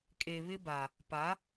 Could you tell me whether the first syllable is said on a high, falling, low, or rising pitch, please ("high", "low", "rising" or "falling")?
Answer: low